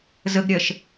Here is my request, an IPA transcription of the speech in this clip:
z ə ɡ ɾʲ ɜ ʃ

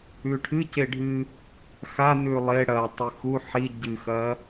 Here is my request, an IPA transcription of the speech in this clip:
ʉ ʈʰ ɨ c e ɖʱ ɨ | x a n ʉ lˠ e ɽ ɐ tˤ ɨ x u ħ i ɟ ɨ x ɐ

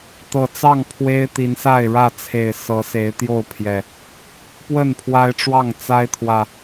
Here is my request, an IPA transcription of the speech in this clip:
t̪ ɤ˨˩ t͡s ɑ˥˨ ŋ pʰ w e˦ ɪ̯ t̪ i˨˦ n s a˥˨ ɪ̯ ɻ ä˥˨ t͡sʰ e˨˩ ɪ̯ s ɤ˨˦ s e˨˦ ɪ̯ t̪ j o˥˨ ʊ̯ pʰ j ɛ˨˩ | p w ə˥˨ n pʰ w a˦ ɪ̯ ʈ͡ʂ w ɑ˥˨ ŋ t͡s a˦ ɪ̯ t̪ʰ w ä˨˩

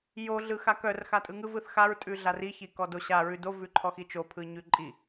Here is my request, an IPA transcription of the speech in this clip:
j o ɮ ɯ x a k œ r x a tʼ ɯ ŋ ɯ v ɯ θ x a ɹ tʼ ʉ ɮ a r i ç i k ɔ d o ɕ a ɹ ʉ d o v ʉ ǃʰ ɔ x i t͡ʃ o pʰ ɯ ɲ ʉ ǃʼ i

